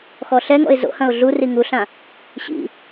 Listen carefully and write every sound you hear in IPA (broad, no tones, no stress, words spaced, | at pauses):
xɔɬɛŋɔ̰ɪ̯ zo̰hɐ̃ʊ̯ ɮuri ŋuɬã | ɕḭ